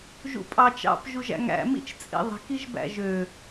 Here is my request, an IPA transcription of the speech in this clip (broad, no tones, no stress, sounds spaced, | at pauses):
ʒ ṵ pʼ ɑ t͡ʃ ɑ̰ p ʒ u ʒ æ̰ ŋ æ̰ m ḭ t͡ʃ t͡sʼ ḭ ðˤ i̤ k i ʒ b æ̰ ʒ ø